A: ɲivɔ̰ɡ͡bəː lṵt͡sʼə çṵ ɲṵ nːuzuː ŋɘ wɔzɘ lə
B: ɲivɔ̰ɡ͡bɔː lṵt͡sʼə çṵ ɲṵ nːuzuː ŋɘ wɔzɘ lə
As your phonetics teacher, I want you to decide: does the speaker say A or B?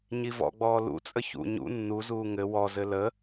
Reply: B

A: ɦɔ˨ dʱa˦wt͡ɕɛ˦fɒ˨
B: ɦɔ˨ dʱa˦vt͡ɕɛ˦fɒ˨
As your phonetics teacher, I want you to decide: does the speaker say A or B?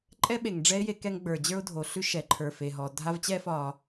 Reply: B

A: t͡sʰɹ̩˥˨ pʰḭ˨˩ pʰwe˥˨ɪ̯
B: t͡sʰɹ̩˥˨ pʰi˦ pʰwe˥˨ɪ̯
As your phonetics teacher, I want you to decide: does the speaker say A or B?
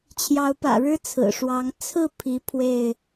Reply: B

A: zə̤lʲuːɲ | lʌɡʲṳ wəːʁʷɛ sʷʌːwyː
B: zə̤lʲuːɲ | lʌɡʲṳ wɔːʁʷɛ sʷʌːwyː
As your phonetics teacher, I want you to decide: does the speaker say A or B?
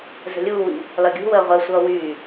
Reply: A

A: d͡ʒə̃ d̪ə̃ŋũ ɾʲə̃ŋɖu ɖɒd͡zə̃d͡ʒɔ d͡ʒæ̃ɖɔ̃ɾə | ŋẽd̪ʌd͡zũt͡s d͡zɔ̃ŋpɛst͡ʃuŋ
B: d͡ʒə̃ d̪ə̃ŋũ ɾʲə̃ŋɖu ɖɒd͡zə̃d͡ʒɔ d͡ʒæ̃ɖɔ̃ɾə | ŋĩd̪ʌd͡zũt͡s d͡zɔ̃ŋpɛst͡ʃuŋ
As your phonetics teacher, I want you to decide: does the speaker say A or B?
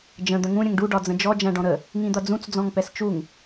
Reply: B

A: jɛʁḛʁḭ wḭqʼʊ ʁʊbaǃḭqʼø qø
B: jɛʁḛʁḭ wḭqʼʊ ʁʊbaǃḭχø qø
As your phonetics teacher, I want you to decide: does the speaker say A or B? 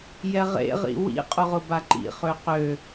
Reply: B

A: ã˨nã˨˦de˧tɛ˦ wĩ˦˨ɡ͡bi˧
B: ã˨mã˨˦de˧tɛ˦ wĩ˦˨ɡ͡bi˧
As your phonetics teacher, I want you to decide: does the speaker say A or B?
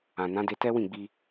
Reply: A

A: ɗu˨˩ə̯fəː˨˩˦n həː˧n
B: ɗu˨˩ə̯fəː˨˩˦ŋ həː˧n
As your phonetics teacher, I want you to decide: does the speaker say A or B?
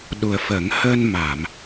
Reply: B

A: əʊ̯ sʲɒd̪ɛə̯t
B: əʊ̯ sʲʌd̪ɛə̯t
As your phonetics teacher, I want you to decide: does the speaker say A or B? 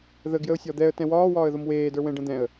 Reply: A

